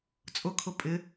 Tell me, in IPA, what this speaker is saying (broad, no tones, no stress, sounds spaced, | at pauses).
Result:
t͡sʼ ʊ kʰ ʊ pʼ ɪ